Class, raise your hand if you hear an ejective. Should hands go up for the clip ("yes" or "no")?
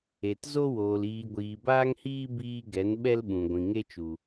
no